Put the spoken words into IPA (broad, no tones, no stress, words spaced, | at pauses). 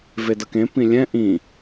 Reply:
vedʌkẽ pĩlʲɛ̃ ʔĩ